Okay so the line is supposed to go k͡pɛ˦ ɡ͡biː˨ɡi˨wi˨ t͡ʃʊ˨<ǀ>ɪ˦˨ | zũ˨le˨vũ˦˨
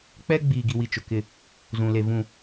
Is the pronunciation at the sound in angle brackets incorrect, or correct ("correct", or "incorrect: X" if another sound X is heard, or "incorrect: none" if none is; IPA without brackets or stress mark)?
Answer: incorrect: k